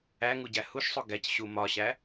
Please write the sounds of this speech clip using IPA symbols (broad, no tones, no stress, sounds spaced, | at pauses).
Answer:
æ ŋ u ɟ æ h u ʃ sˤ o ɡ æ c ɕ u m ɒ ɕ æ